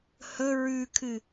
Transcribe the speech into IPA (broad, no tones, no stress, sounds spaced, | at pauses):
h ɵ ɹ ʉ kʰ ɨ